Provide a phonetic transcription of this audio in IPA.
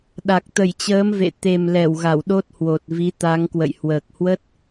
ɗa˨˩k̚t̪ə˧˩jt͡ɕəː˨˦m vḛ˧˨ t̪e˨˩mlɛ˧˩w ɣa˧˩wɗo˦˥t̚hwo˨˩t̚vi˨˦ t̪a˨˦ŋkwə̰˧˨j hwəː˨˩k̚hwə˦˥t̚

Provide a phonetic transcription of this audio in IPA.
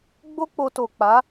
ɡ͡bo˦k͡po˧to˨k͡pa˨˦

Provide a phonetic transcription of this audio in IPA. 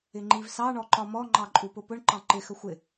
ɪŋ͡ǃivsɑ ɳɔǃɒmɔ ŋ͡ǃɑǃʼupʊpʊɳ ǃɑ̃ǃɪ xəxʷɪ

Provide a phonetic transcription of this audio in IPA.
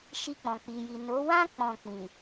ʃi˧k͡pɔ̃˨k͡pi˨ji˨ no˨˦wã˦ k͡pɔ̃˦˨k͡pĩ˨

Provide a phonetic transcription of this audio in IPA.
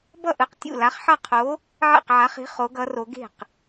bʌ˥˩ʔɯ˨˥qtʲṵ˥˩la˨˥χ ħʌ˥˩qʰo˨˥ | ʕḛ˥˩qʕa˨˥χi̤˨˥ χo˨˥ɡʌ˨˥ro˨˥ ɡe̤˥˩q

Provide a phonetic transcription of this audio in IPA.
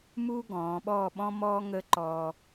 muː˥ɡɔ̃ː˩˧ɓɔː˥˧ ɓɔ̃˥mɔː˥ŋəː˥ǃɔː˧

